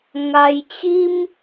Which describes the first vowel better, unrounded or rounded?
unrounded